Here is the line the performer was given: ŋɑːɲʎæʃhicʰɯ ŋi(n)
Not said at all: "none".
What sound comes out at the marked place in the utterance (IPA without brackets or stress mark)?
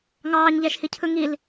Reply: l